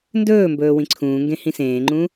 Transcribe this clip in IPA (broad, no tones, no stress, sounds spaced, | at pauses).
n d ɵː m b ɵː w ĩ ǀʰ ũː ŋ ɡ ẽ h ĩ s ẽː ŋ͡ǃ ũ